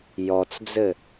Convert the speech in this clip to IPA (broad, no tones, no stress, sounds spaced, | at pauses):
j ɔ t͡s d͡z ɘ